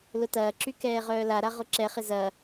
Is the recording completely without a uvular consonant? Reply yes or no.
no